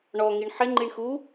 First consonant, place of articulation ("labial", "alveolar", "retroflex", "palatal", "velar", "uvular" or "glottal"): retroflex